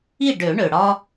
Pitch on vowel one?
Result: falling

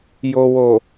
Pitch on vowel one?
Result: low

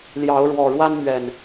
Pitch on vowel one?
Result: rising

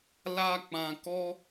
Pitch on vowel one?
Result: high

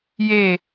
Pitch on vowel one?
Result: falling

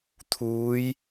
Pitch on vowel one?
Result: rising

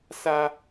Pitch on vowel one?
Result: high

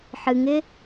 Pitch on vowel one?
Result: low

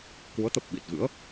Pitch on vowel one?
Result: rising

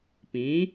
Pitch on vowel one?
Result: rising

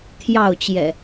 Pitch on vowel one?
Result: falling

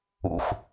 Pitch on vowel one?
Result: low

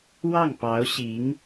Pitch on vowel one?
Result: falling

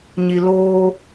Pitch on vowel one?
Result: low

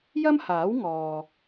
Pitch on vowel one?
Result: high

